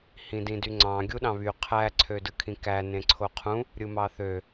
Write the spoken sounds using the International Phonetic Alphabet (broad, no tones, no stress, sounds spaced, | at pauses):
h ĩ d ĩ d y ŋ͡ǀ ɑ̃ ɡʲ u ɗ ɑ̃ β y qʰ æ ǀʰ ø d ɯ kʰ ĩ k æ n ẽ ǀʰ o qʰ ũ | ɾʲ ɯ m ɑ θ ø